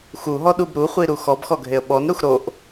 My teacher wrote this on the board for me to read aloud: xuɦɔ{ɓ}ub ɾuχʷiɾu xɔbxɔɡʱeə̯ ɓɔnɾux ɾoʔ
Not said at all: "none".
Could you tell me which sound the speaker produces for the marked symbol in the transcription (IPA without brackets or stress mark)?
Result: ɗ